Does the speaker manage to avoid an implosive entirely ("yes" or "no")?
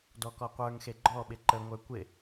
no